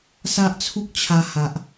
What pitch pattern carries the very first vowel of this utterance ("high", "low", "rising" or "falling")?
high